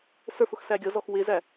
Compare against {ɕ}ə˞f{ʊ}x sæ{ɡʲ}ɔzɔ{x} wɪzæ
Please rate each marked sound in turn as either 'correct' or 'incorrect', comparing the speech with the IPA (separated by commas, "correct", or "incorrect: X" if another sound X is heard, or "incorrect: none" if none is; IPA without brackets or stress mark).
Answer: incorrect: s, correct, correct, correct